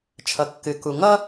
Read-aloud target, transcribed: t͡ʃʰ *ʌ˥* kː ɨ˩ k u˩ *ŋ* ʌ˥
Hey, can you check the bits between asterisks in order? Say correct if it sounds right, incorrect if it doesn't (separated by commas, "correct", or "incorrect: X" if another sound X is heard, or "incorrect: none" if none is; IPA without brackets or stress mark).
incorrect: ʌ˩, correct